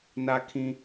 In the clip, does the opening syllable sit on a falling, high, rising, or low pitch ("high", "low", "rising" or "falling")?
high